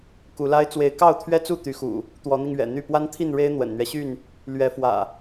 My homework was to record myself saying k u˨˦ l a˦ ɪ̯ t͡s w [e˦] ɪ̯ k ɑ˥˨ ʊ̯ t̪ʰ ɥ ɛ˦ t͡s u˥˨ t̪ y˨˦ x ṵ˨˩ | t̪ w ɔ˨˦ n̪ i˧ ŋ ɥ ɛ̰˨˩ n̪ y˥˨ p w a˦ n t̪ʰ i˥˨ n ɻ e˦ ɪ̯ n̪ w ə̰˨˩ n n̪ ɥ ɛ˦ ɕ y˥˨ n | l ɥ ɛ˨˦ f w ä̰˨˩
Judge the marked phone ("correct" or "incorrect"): incorrect